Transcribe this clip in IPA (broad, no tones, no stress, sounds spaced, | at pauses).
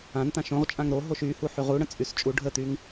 ã n t̪ ã ʃ õ ʁ t͡ʃʼ ã ŋ ɾ o ɦ o ʃ y h u ħ y ʁ u ɽ ə̃ t͡sʼ y s t͡ʃʼ u ɖʱ ə t̪ y ŋ